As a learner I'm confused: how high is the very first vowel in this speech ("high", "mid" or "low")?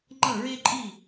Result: mid